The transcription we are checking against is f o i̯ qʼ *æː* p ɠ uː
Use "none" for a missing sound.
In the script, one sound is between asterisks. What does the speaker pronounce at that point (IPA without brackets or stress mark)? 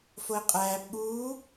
æː